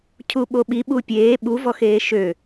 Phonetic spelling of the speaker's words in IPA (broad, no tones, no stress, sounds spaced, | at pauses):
cʰ u ɓ o ɓ i ɓ u pʲ eː ɓ u v ɔ x eː ʃ ø